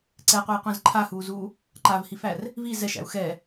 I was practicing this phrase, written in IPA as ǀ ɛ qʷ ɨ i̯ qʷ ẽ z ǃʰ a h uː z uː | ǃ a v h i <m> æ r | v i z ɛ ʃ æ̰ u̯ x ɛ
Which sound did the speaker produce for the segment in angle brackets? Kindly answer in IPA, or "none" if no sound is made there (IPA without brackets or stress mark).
f